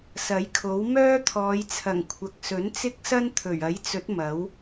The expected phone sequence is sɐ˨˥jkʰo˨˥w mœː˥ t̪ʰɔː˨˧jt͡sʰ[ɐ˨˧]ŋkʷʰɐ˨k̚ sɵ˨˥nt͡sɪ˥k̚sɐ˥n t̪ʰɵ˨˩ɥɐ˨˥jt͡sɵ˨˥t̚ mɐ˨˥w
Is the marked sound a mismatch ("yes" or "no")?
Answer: yes